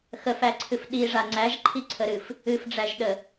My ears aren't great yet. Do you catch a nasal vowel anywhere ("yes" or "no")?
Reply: no